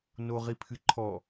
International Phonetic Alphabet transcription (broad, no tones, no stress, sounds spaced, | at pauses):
n o ʁ i pʰ ɨ ǃʰ ɔ